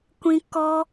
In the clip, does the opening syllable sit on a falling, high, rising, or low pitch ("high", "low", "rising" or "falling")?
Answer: high